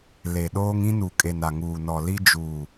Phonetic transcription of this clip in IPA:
le˨ɗoː˦ŋ ĩ˦nu˨kʼe˨n a˨ŋuː˨nɔ˨ li˦d͡ʒuː˨

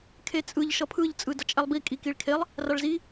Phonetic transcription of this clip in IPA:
kʰet͡sʼɯʎ ʃʌpʰɯʎ t͡sʼɯdʌt͡ʃʼɛlˠbi kʼikiɭkʰelˠ | raɭzi

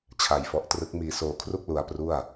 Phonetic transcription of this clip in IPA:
t͡ɕʰa˧jfɔ˦˥ʔtrɯ˦˥k̚ miː˧soː˧kʰru˥˩k̚ lu˧a̯pru˥˩a̯

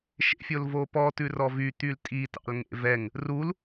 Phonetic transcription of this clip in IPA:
ʃḛfʲolvopɔ tʉrɔvy t̪yltʼi tɑ̰lŋḛvɛŋ | rul

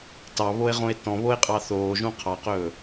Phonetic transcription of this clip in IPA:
tɑβoe̯ʁõe̯ tɔ̃βoe̯qʼɑ θoːʒũ qʰɑqɵː

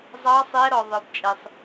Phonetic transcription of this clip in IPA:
zˤɑ˧˥sˤɛ˧˥ ɾɔ˩ðˤə˞˩bt͡ʃʼɛ˩sˤ

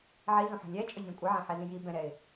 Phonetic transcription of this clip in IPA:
ʕizũħə̤ lʲɛt͡ʃʼʊzʲũ kʷʼɪʕɛ̃ħɛzĩ ji bɛ̃ɾɛɪ̯

